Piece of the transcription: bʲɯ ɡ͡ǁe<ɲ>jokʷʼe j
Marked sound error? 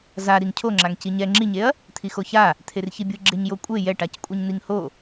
no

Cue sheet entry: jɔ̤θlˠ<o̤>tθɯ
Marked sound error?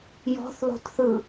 no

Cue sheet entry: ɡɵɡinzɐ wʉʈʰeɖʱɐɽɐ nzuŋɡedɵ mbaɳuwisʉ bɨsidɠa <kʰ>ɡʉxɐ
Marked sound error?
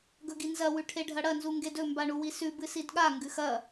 yes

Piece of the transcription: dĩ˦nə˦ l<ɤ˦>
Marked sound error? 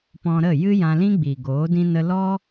yes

